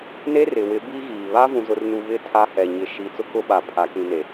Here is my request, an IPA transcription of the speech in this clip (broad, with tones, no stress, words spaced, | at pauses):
ne˦rɪ˨wɪ˨˦ bi˦ɣiː˨ βa˦vũ˨zʊ˨rnu˨ βɪ˦˨ tʰa˦hɛ˨ ɲɪ˨ʃi˨ t͡sʊ˦kʊ˦ɓa˨ pʰa˨kĩ˨ne˨